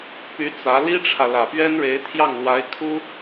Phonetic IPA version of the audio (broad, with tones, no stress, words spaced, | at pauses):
py˧˥ t͡sä˧˥ li˥ʈ͡ʂʰä˨ lä˨˩pɥɛ˥nɻe˧˥ɪ̯t̪ʰjɑ˥˩ŋ lwa˧˥ɪ̯kʰu˥